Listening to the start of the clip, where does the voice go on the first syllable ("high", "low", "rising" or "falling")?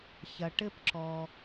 low